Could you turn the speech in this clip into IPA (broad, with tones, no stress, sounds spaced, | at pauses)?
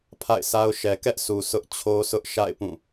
pʰ a̰˦˨ ɪ̯ s a˦ ʊ̯ ʃ ɛ˨ k ɛ˦ ʔ sʰ u˨ sʰ ʊ˦ ʔ t͡ɕʰ o˦ sʰ ʊ˦ ʔ ʃ a̰˦˨ ɪ̯ p ũ˦˨